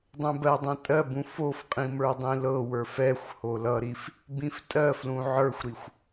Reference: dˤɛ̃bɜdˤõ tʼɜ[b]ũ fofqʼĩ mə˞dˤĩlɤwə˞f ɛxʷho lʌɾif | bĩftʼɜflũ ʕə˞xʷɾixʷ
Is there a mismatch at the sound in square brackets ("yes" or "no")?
no